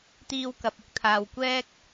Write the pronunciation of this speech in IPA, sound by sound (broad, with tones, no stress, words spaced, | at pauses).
t̪iː˧wkɐ˨p̚ ʊ˥k̚t̪ʰaː˧w kʷɛː˥k̚